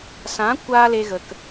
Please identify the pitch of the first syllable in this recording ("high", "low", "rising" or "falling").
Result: rising